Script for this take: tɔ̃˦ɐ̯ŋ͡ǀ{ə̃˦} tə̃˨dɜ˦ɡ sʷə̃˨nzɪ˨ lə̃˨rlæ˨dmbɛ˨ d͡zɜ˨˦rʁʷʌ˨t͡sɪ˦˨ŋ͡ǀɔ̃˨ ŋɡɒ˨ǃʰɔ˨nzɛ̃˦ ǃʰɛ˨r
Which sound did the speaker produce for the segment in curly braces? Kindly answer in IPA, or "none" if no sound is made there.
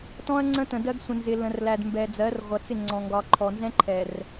ə̃˦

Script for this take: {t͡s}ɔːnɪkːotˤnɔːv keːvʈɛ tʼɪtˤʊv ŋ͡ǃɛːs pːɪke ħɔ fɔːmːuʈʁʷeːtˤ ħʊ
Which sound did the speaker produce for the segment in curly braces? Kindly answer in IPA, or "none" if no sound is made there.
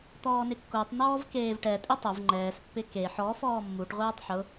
t̪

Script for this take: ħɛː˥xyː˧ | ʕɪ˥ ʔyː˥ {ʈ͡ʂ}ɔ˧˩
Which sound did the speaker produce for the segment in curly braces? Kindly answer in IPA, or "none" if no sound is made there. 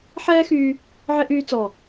t͡s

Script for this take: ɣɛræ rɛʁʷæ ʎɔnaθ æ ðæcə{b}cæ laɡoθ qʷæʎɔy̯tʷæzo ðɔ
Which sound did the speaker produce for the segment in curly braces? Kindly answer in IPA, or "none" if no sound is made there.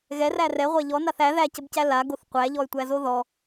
b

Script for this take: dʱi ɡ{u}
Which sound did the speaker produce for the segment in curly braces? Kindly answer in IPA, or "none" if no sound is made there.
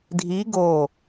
o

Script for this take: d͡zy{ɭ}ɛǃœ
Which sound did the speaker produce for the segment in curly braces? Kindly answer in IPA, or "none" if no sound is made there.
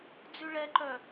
ɭ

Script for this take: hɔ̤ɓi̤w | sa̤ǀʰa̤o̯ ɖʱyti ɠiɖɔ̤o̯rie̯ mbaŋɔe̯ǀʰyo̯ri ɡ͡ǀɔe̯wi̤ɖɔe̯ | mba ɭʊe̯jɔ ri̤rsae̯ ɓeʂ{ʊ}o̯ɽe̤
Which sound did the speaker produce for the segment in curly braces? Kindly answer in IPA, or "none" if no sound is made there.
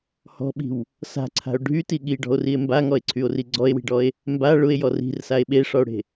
ɔ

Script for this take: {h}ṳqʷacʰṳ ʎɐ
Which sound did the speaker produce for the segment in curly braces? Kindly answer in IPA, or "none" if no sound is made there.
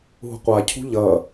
ɦ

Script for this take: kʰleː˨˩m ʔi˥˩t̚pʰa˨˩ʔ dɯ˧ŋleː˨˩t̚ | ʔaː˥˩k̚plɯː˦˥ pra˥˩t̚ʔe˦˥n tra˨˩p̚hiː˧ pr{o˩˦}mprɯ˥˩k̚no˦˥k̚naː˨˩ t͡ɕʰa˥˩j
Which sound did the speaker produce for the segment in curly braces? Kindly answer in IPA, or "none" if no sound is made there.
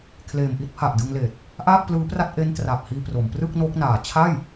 o˩˦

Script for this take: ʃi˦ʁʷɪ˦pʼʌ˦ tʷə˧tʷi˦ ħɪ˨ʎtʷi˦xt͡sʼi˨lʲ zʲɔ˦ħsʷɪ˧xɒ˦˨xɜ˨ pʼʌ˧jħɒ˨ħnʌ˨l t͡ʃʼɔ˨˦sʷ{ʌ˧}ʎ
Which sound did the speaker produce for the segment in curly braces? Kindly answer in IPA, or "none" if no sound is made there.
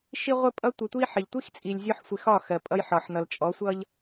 ʌ˦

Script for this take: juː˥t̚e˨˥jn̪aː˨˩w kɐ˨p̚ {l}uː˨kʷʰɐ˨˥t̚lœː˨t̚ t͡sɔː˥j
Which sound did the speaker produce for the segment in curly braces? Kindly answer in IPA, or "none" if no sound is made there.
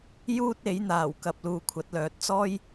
l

